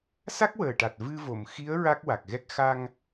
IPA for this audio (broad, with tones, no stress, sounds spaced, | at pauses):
s a˦˥ k̚ w əː˨˩ ʈ a˨˩ t̚ v ɨ˧ v o˨˩˨ m x i˧˥ ə̯ ɹ a˦˥ k̚ w a˨˩ k̚ ɣ ɛ˦˥ k̚ x a˧ ŋ